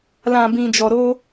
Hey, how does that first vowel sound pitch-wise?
low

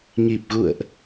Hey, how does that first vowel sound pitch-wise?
low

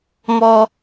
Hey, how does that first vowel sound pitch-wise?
high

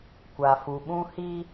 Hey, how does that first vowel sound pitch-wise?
low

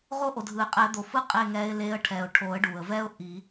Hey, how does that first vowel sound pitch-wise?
high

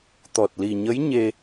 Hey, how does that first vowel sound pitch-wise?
low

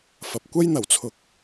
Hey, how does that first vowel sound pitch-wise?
low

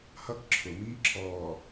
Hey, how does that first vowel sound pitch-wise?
high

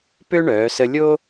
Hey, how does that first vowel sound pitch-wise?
high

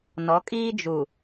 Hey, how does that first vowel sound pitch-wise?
rising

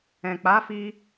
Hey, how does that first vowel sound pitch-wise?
low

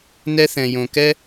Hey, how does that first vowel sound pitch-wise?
high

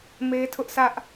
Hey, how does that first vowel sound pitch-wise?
high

